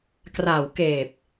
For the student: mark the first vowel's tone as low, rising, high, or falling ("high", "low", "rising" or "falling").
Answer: low